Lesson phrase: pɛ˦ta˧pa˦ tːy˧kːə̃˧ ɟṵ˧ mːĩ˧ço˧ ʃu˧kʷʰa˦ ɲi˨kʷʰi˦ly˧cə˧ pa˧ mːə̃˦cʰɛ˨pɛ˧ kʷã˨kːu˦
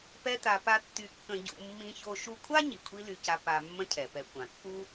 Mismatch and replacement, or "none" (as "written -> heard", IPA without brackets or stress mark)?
ə˧ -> a˧